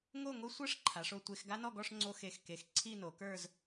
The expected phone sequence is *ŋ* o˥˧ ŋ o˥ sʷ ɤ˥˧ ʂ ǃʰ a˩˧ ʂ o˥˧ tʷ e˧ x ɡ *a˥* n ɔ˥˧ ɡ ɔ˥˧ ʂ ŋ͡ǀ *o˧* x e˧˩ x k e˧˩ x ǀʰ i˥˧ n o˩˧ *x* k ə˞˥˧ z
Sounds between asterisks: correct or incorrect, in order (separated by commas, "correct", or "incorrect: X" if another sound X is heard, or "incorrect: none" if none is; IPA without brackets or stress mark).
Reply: correct, correct, correct, incorrect: none